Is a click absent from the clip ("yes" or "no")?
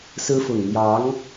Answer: yes